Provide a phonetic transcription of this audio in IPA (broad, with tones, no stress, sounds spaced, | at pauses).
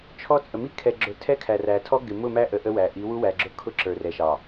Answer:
t͡ʃʰ ɔ˦ t͡sʼ ə˨ m i˦ kʰ ɛ˨ ɡ͡ǁ ʊ˨ tʰ ɛ˦ kʰ æ˨ r æ˨ tʰ ɔ˦ ɡ ɪ˨ m ʊ˦˨ m æ˦ ʔ ə˨ ʔ ə˦ w æ˨ ʔ i˨˦ w u˦ w æ˨ ɡ͡ǁ ʊ˦ kʰ ʊ˦ ǁ ə˞˨ r ɛ˨ ʃ ɑ˨